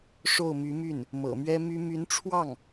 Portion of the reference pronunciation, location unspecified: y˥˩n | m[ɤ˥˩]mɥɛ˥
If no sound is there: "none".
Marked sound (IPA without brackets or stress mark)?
ɤ̰˨˩